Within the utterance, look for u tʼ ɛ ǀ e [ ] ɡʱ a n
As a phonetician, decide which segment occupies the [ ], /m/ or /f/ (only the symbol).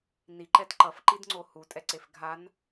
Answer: f